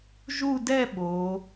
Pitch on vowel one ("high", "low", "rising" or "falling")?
falling